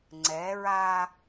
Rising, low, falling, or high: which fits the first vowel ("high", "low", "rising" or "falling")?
rising